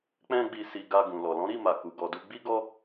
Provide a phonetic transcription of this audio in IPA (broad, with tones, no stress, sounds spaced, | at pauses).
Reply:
k͡p ɛ̃˦ ɡ͡b i˧ s i˧ ɡ a˧ ɡ ũ˨ l ɔ˨ l ɔ̃˨˦ ɾ i˦˨ m a˨ k u˨˦ ɡ ɔ˧ d u˦ ɡ͡b i˦ ɡ ɔ˦